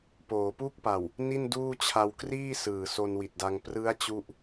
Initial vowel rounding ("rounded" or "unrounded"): rounded